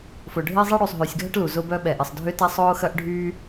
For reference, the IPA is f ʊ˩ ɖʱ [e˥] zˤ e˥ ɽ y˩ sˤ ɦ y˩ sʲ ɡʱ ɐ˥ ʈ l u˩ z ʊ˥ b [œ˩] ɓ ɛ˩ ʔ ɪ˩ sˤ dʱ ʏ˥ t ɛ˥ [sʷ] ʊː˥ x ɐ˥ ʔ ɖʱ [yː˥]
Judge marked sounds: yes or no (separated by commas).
yes, no, no, yes